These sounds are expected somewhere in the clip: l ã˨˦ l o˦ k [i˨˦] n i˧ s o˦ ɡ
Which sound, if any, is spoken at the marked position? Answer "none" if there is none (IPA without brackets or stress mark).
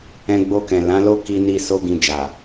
i˧